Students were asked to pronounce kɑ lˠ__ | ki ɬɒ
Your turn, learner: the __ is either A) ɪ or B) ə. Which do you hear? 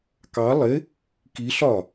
A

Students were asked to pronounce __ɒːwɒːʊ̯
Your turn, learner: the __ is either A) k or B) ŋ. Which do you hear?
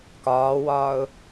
A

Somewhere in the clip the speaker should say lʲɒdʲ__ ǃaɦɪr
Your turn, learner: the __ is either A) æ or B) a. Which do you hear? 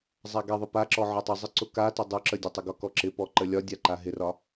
B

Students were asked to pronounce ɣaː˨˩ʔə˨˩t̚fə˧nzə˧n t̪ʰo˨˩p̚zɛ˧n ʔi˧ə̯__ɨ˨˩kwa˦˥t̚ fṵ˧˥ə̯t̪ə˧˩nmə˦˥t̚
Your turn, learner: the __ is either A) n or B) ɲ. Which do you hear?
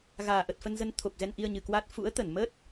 B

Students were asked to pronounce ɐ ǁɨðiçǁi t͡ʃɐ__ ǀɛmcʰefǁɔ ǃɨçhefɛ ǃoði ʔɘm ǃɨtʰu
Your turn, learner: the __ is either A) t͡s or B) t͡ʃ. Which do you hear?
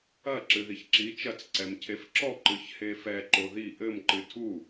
A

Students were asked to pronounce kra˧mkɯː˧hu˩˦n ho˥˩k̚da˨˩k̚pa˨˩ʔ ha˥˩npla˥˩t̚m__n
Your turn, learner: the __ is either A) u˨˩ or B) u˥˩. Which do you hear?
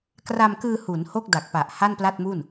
B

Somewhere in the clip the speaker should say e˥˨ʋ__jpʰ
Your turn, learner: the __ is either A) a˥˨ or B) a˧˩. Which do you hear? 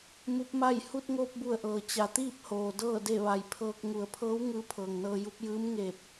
B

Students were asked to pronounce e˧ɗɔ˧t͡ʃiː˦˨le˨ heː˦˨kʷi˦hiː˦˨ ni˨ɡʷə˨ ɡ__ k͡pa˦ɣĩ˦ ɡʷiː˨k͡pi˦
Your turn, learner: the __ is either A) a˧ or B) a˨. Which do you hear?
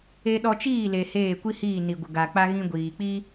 B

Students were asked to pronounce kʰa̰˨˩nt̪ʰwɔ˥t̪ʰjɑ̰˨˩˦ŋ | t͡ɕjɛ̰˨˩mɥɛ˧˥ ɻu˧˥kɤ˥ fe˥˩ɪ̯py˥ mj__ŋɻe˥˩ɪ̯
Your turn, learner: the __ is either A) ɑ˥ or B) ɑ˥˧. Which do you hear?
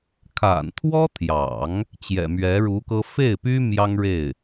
A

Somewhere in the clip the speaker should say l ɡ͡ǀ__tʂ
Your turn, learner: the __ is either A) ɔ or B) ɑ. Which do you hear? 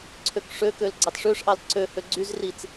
B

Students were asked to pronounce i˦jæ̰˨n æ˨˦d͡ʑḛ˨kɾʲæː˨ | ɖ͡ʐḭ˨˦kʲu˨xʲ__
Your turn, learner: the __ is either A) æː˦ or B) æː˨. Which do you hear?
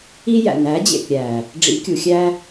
A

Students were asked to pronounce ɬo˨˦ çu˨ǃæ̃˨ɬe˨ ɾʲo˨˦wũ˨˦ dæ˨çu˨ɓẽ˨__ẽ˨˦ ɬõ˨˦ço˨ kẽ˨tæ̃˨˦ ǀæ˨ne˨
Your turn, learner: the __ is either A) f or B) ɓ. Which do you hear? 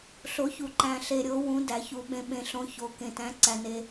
B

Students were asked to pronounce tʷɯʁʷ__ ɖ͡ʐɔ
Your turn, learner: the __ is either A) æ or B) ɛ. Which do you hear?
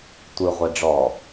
B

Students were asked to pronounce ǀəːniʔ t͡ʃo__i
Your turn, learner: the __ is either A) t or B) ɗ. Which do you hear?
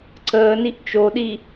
B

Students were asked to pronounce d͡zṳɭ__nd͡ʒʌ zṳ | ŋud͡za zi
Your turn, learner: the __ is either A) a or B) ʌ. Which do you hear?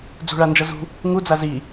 A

